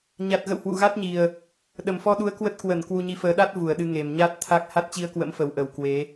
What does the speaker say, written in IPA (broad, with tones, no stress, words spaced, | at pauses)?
ɲa˨˩t̚ɣə̰˧˨w hwṵ˧˨ɣa˦˥t̚ɲi˨˩ə̯ | ɗə˨˩mfɔ˧ɗu˨˦ə̯ kwə˦˥t̚ kwə˧˩n kwu˧ɲi˨˦fəː˨˦ ɗa˦˥t̚ vu˧˩ə̯ɗɨ˧ ŋe˧˩mɲa˦˥t̚t̪ʰa˦˥k̚ ha˦˥t̚t͡ɕi˧ə̯kwə̰˧˥mfə˧˩w ʔə˧˩wkwe˨˦